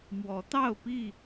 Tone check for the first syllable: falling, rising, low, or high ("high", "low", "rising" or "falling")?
rising